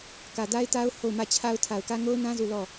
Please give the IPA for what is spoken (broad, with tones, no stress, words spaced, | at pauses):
kä˨da˦ɪ̯ta˦ʊ̯ ho˦˨ʊ̯mä˦˨t͡ɕʰa˦ʊ̯ tʰa˨ʊ̯kä˦ ŋo˦ʊ̯nã˦ zu˦˨lɔ˦˨